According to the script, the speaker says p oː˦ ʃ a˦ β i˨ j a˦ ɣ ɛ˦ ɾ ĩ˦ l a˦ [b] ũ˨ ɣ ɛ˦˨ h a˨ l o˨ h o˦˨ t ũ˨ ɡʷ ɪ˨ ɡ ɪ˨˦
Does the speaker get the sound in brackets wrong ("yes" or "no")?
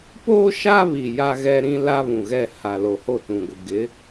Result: yes